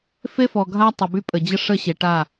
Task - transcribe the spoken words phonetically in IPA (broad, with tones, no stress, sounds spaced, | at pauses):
f e˦ f ɔ˨ ɡʱ a˦ tˤ ə˨ b y˦ pʼ ə˨ d͡ʑ ə˦ ʂ ə˦˨ ɕ e˨ ʈ a˦˨